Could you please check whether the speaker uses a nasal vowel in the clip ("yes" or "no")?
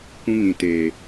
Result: yes